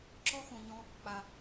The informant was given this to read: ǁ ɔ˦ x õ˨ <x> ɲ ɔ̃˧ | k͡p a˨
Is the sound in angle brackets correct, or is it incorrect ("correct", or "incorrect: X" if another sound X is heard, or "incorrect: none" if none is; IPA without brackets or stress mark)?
incorrect: none